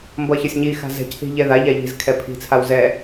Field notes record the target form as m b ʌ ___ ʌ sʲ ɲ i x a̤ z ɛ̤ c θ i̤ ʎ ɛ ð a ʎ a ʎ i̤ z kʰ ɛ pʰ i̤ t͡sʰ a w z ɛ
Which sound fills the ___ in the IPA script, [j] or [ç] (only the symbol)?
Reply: ç